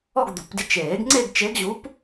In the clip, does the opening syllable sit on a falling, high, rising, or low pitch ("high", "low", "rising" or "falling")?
falling